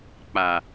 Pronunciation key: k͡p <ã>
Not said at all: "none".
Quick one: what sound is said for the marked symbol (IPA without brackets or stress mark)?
a